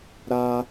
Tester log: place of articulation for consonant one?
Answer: alveolar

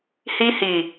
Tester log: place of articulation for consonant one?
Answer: glottal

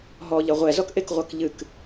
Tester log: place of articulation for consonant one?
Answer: glottal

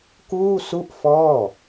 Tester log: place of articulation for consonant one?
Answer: velar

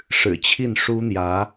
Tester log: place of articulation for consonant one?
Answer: retroflex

